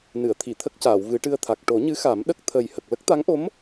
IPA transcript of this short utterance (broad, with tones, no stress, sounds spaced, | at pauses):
n ɨ˨˩˨ ə̯ t̪ʰ i˨˩˨ t̪ʰ ə˦˥ k̚ c aː˨˩˨ w v ɨ˨˩˦ ʈ ɨ˧ ə̯ t̪ʰ a˨˩ k̚ ʈ o˨˩˦ ɲ ɨ˧˥ x a˨˩˦ m ɗ ə˦˥ k̚ t̪ʰ ə˨˩ j h ə˨˩ k̚ l ə˦˥ k̚ t̪ a˧˥ ŋ ʔ o˧˥ m